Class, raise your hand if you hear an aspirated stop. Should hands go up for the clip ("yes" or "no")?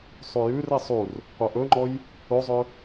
no